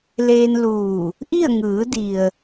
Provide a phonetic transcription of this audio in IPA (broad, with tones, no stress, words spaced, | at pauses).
leː˧nluː˧˩ | ʔi˥˨ə̯ ŋɯː˩˧di˩ə̯